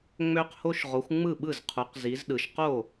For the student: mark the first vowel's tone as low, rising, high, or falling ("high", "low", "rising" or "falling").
high